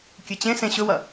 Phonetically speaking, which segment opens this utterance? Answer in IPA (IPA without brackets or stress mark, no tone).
kʲ